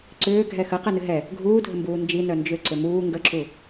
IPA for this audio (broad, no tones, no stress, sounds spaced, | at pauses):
ǀ ʏː ɡʱ ɛ x ə q ɛ n ɨ ɦ ɛ | ɡʱ uː dʱ ə m b uː n d͡ʒ i n œ n d͡ʒ ʏ ǀ ʏ m uː ŋ ɡ ə ǁ u